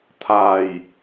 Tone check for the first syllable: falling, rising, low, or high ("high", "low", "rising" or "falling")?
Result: low